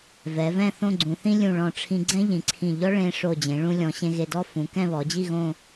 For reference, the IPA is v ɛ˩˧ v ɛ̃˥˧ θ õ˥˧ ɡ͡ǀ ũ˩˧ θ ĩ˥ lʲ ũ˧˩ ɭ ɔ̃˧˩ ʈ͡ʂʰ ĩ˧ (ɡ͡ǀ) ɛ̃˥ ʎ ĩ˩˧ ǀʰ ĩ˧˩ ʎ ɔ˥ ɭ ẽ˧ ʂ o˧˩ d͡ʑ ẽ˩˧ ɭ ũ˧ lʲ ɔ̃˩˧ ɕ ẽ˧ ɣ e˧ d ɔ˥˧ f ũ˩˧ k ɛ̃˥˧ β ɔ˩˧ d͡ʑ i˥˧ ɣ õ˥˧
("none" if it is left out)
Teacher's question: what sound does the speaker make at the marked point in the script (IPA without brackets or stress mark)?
ɡ͡ǀ